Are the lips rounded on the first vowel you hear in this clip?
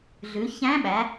yes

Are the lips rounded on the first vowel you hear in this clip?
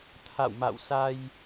no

